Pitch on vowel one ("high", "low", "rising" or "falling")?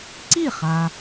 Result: falling